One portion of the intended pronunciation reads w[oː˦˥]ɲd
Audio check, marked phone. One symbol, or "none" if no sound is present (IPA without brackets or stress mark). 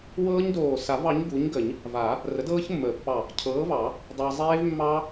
ɤː˦˥